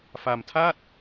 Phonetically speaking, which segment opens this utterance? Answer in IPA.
f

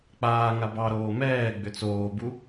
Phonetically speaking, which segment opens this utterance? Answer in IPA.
k͡p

